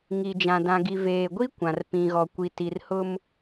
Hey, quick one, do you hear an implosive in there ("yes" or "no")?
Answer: no